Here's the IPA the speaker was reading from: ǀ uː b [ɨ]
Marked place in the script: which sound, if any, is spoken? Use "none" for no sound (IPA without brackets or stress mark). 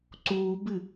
ɨ